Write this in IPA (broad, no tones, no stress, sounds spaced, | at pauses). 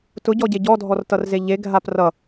t ʊ ɟ ɔ ɟ e ɟ ɔ dʱ ɔ r t ʌ r z e ʎ e ɡʱ a p r ʌ